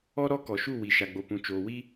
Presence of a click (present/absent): absent